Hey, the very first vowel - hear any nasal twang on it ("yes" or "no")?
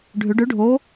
no